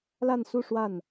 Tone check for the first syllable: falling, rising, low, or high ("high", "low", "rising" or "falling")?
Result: falling